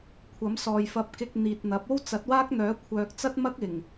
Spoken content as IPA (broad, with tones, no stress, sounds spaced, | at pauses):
kʷʰ ɐ˨˥ m s ɔː˨ j f ɐ˧ p̚ k ɪ˧ k̚ n̪ iː˨ t̚ n̪ ɐ˨˥ p̚ o˥ w t͡s ɐ˨˥ t̚ w aː˥ k̚ n̪ œː˨˥ kʷʰ œː˨ k̚ t͡s ɐ˥ t̚ m ɐ˥ k̚ ɪ˨˩ ŋ